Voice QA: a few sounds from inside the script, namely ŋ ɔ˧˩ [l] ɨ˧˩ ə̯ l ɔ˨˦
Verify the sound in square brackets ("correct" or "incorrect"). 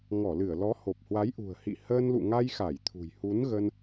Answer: correct